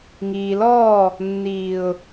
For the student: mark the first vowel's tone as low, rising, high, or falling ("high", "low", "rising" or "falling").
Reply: low